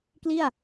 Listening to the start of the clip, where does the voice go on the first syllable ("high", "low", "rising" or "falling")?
falling